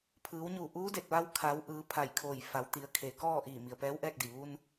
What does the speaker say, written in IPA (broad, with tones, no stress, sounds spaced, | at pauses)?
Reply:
pʰ ɯː˩˧ w ɲ uː˧˩ ʔ uː˧˥ d e˧˩ t̚ ʋ a˧ w kʰ a˩˧ w ʔ ɯː˩˧ pʰ a˧˩ j kʰ oː˧˩ j f a˩˧ w t̪ i˩˧ ə̯ kʰ e˩ k ɔː˥˨ ʔ iː˧˩ m i˩ ə̯ p ɛː˧˥ w ʔ ɛː˥˨ k̚ d i˩ ʋ u˧ n